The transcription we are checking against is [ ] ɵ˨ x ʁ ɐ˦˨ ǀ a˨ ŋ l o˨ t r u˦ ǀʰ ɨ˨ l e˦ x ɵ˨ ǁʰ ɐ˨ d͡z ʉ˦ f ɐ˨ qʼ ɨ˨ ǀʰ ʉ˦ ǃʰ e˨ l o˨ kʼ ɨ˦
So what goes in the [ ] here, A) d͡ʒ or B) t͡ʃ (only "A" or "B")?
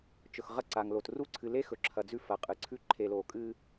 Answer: B